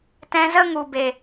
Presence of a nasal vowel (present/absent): present